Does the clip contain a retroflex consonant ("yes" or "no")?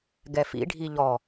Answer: yes